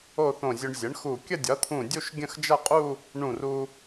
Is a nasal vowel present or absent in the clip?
present